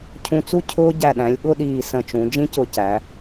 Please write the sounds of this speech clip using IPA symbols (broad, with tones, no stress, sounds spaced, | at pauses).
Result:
cʰ ũ˧ t͡s u˥˧ cʰ ʊː˧ ɟ æ˧˩ ɗ æ̃˩˧ lʲ ɠ ʊ˥˧ ɗ iː˧˩ s ə̃˧˩ t͡ʃ ũ˩˧ d͡ʒ ĩ˥ c ʊ˧ c æ˩˧